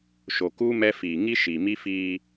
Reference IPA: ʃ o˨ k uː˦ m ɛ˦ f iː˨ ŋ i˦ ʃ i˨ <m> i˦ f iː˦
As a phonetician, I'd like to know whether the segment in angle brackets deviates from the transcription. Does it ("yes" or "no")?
no